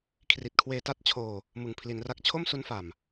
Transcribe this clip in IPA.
kʰri˨˩t̚kʰweː˧ta˥˩t̚t͡ɕʰoː˧ | mɯ˨˩ŋpʰli˩˦nra˦˥k̚ t͡ɕʰo˥˩msu˦˥nfa˨˩m

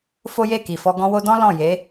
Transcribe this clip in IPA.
fo˦je˦˨ki˨fɔ˧ ɡɔ̃˧wo˧dɔ̃˦ lɔ̃˦˨je˨˦

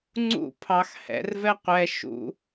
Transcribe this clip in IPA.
ŋ͡ǀṵ pʰɑx hɛ̰r vɛqʷɛ ʃṵ

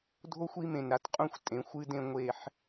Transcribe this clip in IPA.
dʱo˦xʷi˦ mẽ˨nɾa˨tqʼũ˦˨xʷ tʼẽ˨˦xʷɨ˦dẽ˦ŋʷe˦ħ

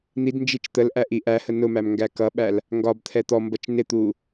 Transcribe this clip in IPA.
n̪idnd͡ʒit͡ʃ t̪əl ʔæʔiʔæhə nʊmæm ŋɡækʌɓæl | ŋɡɒbt̪ʰɛ t̪ɔmbʌt͡ʃ nɪt̪u

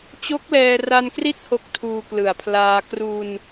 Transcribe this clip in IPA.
t͡ɕo˦˥k̚lɛː˧ra˧nkri˦˥t̚ ho˦˥k̚ tʰuː˧klɯ˨˩a̯pʰlaː˧ kru˧n

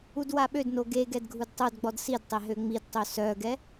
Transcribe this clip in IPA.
udwaɓødno ɡeɡɛd ɡʱudtˤœdɡ͡bɔd sidtˤe ɦøŋ͡midtˤø sœɡɛ

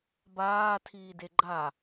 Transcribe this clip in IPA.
baː tʰiːdeɡ͡ǃa

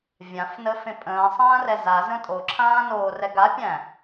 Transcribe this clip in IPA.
vʲãfnəfẽ pʼə̃ːsˤãːrɛ zazə̃ tʼoǁʰãːnoːrɛ ɡapʲæ̃

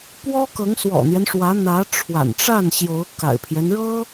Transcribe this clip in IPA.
pwɔ˥ kɤ˧˥ŋswɔ̰˨˩n̪jɛ˦nʂwä˧˥ n̪ä˧˥ʈ͡ʂʰwa̰˨˩nʈ͡ʂa˥˩nɕjo˧˥ʊ̯ ka̰˨˩ɪ̯pʰjɛ˦nɻɤ˥

